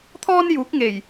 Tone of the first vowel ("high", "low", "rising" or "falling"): high